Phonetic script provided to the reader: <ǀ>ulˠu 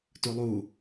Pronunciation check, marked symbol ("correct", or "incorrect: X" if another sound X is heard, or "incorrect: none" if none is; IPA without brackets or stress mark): incorrect: t